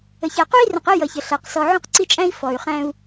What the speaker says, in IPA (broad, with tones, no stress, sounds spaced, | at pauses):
ə˨ ç æ˨ q u˦ i̯ r ə̃˨ q ə˦ j ʌ˨ ç ə˨ ɬ æ˨ q s ɔ˨ ʕ ũ˦ q ǀ i˦ t͡ʃʼ æ̃˦ i̯ f ɔ˨ y̯ χ æ̃˦ u̯